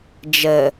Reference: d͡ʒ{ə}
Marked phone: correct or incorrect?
correct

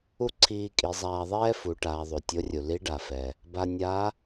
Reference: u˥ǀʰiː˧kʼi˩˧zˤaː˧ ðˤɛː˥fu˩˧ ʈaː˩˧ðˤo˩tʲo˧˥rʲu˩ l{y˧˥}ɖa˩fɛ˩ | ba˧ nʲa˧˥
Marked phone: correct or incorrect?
incorrect: i˧˥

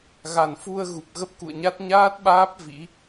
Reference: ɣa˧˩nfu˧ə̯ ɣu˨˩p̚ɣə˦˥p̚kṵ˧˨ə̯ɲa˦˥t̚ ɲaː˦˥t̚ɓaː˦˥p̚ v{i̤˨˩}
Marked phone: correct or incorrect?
incorrect: ḭ˧˥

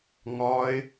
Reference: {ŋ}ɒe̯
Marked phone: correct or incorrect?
correct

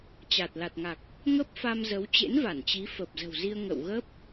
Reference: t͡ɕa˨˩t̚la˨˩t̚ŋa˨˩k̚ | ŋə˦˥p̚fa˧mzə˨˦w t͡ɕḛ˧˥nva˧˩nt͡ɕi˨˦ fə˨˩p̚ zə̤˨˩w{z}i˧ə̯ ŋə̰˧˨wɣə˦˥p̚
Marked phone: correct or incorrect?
correct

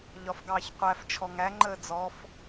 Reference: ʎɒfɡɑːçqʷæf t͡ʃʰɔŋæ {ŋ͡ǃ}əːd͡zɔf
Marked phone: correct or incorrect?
correct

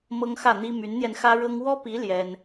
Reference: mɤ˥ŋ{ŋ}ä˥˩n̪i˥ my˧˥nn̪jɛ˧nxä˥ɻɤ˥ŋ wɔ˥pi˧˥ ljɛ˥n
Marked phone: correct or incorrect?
incorrect: x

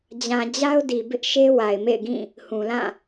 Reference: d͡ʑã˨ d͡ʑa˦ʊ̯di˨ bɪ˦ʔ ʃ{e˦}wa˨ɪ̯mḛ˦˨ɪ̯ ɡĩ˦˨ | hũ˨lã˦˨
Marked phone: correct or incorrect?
correct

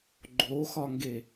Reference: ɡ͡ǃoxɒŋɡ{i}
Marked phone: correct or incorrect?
incorrect: e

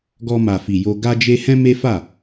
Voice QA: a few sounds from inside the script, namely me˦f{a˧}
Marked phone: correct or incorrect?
incorrect: a˦˨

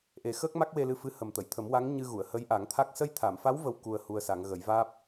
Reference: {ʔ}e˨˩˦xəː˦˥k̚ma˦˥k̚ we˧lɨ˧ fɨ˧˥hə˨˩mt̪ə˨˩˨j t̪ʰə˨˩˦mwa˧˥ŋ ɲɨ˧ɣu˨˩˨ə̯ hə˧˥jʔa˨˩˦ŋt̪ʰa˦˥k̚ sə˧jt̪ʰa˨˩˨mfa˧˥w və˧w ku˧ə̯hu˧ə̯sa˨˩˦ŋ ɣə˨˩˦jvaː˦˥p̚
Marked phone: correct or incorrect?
correct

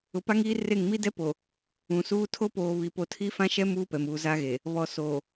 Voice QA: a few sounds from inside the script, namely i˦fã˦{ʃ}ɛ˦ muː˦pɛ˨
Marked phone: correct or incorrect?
correct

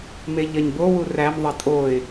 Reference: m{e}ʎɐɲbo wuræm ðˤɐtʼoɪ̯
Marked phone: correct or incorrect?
correct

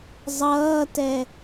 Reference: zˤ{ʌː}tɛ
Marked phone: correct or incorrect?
correct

